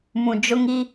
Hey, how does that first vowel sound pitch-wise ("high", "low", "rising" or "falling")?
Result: low